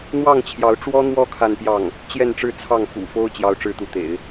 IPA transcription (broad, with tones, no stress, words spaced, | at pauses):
n̪wɑ˥˩ŋ t͡ɕʰjɑ˧˥ʊ̯ ʈ͡ʂwɔ˥n̪wɔ˥˧ kʰa˥˧npjɑ˥˩ŋ | t͡ɕjɛ˥˧nʈ͡ʂɻ̩˥˧ t͡sʰɑ˥˩ŋfṵ˨˩fo˥ʊ̯ t͡ɕjɑ˥ʊ̯ʈ͡ʂɻ̩˥t̪u˧˥t̪ḛ˨˩˦ɪ̯